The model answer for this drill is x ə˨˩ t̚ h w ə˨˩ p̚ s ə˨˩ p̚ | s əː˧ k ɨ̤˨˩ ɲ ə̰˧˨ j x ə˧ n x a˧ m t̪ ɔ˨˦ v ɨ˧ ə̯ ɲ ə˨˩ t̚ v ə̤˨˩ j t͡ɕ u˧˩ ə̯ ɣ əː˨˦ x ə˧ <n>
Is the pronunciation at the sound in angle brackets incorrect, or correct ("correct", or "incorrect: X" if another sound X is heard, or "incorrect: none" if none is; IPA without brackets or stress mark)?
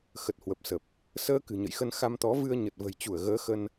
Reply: correct